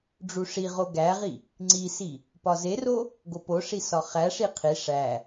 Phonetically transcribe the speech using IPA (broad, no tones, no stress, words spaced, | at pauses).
ɖ͡ʐuʂiʁo ɡæʁi | ŋ͡ǀisi | pɒzero | ɡopoʂi sɒχæʂi qʰi ʂæ